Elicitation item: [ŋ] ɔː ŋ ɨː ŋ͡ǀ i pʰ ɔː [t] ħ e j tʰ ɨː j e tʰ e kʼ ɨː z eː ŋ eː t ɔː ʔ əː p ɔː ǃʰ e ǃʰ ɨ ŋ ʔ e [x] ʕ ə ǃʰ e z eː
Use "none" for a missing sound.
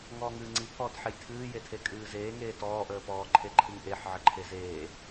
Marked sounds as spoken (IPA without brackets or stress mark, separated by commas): ŋ, t, ħ